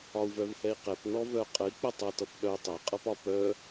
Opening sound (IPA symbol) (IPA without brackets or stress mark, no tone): ɒ